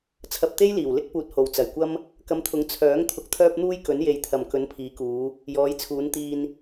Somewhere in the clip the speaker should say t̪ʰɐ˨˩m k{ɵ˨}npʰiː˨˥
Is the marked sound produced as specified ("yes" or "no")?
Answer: no